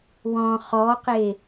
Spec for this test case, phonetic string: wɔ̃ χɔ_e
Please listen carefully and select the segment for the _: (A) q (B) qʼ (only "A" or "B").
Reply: A